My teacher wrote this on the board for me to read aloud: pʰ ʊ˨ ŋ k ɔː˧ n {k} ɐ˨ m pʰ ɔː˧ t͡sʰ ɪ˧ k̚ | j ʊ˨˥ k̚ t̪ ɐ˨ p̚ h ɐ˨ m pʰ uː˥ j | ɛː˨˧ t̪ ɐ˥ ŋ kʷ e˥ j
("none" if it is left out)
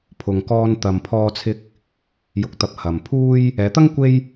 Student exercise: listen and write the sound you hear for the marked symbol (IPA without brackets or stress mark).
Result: t̪